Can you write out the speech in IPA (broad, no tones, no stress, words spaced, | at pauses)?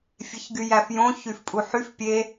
fʲeçɡyjæfjõ çyfpʼuħyf pʲe